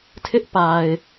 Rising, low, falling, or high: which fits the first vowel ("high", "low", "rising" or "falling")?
high